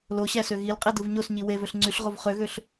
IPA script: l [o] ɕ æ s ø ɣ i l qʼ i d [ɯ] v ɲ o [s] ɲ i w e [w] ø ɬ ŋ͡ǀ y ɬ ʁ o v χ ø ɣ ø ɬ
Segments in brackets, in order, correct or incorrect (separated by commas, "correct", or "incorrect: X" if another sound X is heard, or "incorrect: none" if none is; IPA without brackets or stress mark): correct, correct, correct, incorrect: v